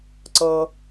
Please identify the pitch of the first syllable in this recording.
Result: low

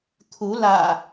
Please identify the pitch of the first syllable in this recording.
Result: rising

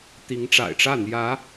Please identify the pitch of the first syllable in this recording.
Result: rising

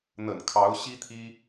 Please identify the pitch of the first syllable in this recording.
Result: low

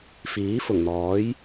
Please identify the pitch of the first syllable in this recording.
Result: rising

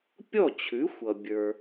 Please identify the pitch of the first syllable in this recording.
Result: falling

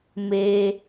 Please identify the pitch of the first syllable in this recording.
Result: high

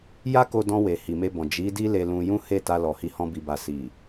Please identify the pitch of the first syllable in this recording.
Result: high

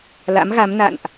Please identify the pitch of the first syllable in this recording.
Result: rising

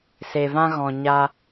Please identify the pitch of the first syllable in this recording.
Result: low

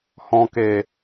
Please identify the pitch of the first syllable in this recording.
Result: low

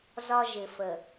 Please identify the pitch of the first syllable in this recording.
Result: high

